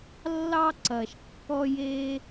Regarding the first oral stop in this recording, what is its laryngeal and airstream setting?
click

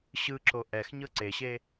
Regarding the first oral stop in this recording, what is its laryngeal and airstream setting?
click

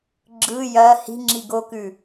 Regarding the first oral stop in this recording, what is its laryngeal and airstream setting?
click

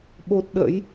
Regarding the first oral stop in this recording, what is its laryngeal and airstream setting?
implosive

